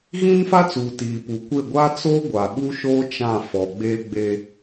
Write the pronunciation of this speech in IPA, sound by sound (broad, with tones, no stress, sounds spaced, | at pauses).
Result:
ɣ ĩ˦ n f a˦ t͡s uː˨ t iː˨ p uː˨ kʷ e˦˨ ɡʷ a˦ t͡s o˦ ɡʷ a˨ ɓ u˦ ʃ oː˦ t͡ʃ ã˦˨ f ɔ˨ ɡ͡b e˦ ɡ͡b e˦